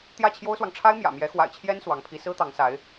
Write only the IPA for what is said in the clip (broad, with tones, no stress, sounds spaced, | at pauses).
t̪ j ä˥˩ t͡ɕʰ j o˥ ʊ̯ s w ɑ˨ ŋ ʈ͡ʂʰ a˥ ɪ̯ m j ä̰˨˩ m j ɛ˧˥ x w a̰˨˩ ɪ̯ t͡ɕʰ j ɛ˥ n s w ɑ˧˥ ŋ pʰ i˧˥ s ɹ̩˥ t̪ ɑ˧˥ ŋ s a˧˥ ɪ̯